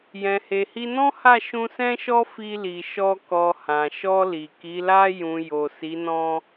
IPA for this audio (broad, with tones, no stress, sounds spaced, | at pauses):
j ɛ̃˨ h e˨ h i˧ n ɔ̃˦ h a˦˨ ʃ ũ˧ s ɛ̃˦ ʃ ɔ˦ f i˧ l i˨ ʃ ɔ˧ k ɔ˨ h ã˨ ʃ ɔ˧ l i˨ k i˨˦ l a˧ j ũ˨ j o˨ s i˨˦ n ɔ̃˦